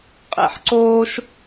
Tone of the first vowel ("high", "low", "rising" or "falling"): rising